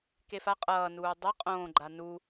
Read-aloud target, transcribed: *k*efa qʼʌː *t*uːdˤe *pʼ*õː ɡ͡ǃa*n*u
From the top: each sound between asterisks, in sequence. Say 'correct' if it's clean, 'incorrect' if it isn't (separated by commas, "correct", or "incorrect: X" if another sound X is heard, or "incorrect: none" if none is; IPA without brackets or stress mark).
correct, incorrect: n, incorrect: qʼ, correct